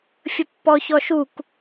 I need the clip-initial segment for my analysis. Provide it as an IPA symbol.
fʲ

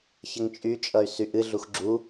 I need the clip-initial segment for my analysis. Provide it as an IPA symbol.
ç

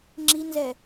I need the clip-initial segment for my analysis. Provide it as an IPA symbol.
ŋ͡ǁ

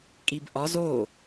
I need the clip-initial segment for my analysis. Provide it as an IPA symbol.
kʼ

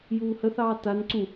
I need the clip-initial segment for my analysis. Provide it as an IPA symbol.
j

